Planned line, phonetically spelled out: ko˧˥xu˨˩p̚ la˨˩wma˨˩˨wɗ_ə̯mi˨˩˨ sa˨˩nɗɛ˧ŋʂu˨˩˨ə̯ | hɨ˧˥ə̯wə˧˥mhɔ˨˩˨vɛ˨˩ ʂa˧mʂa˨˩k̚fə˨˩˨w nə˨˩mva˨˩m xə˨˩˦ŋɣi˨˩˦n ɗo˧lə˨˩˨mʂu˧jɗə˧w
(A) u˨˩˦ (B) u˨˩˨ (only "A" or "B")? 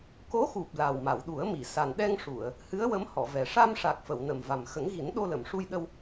A